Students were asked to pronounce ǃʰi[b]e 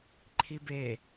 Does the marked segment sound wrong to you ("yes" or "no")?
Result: no